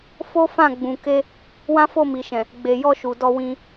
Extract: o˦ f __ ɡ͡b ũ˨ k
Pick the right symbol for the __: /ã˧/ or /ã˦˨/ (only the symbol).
ã˦˨